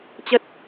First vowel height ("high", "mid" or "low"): mid